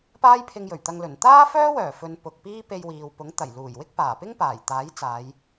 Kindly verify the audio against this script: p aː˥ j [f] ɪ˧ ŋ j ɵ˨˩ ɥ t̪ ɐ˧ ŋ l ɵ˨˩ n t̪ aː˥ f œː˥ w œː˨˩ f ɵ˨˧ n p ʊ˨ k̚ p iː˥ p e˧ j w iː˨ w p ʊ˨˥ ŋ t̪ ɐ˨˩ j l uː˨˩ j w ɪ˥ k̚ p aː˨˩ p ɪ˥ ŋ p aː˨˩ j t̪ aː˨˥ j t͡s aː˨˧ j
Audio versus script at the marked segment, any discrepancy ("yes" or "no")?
yes